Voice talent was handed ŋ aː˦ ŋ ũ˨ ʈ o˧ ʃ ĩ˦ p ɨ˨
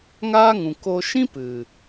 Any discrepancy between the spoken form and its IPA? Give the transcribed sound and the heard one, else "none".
ʈ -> k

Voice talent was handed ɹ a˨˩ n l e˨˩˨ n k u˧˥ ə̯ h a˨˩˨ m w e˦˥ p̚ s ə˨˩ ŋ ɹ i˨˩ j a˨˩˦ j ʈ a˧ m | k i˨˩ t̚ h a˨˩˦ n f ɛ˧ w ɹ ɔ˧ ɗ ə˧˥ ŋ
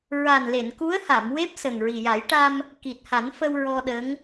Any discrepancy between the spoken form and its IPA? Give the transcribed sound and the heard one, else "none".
ɛ˧ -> ə˧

